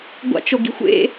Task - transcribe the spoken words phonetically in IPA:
ɡʷ a̰ t͡ʃ o ɡ i̤ xʷ ḛ

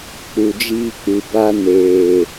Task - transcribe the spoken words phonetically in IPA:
k͡p u˨ d͡ʒ iː˧ k͡p ɨ˨ b a˧ n eː˨

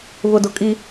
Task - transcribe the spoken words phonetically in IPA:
β ʊ˨ d ʊ˦ kʼ i˦

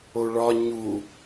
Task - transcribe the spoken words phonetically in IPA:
o ɭ ɒ ɲ u

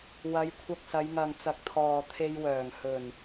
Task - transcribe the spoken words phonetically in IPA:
w ɐ˨˧ j kʷʰ ɐ˧ k̚ s ɐ˨˧ j ŋ ɐ˨ ŋ t͡s ɐ˨˥ k̚ t̪ʰ ɔː˨ t̪ʰ e˧ j w œː˨˩ ŋ h ɵ˨˩ n

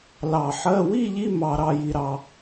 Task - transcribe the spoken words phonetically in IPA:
l ɑ˧˩ ħ ɜ˧˥˧ w i˥˧ ʎ i˧˥˧ m ɑ˧ ɾ ɑ˧ j i˧ ɾ ɑ˧

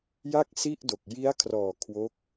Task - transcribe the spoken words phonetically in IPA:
j a˥˩ k̚ s i˥˩ ʔ d o˨˩ k̚ j i˦˥ a̯ kʰ r ɔː˨˩ kʰ w o˦˥ k̚

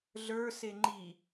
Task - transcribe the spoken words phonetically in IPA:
ɮ ə˞ s e ŋ͡ǃ i

